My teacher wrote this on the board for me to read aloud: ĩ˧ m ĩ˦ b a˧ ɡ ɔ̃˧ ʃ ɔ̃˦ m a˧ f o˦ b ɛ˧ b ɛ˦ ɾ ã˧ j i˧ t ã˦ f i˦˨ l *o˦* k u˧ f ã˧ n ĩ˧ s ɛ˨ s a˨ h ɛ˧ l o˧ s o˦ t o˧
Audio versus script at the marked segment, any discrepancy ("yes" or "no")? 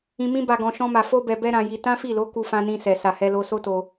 yes